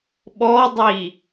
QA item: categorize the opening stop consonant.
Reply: implosive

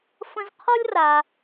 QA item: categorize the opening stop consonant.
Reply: aspirated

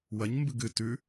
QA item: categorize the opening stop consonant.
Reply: plain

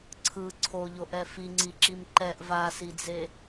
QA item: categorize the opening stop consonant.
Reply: click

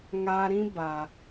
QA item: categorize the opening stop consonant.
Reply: plain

